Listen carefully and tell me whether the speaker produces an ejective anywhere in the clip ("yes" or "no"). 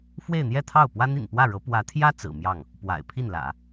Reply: no